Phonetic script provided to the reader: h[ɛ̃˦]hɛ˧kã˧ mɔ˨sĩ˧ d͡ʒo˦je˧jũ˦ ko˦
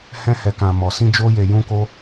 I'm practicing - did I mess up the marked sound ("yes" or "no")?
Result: no